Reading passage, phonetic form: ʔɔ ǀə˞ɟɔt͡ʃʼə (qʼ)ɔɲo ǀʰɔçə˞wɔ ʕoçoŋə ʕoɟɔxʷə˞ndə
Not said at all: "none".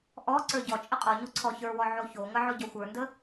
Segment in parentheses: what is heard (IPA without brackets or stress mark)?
qʼ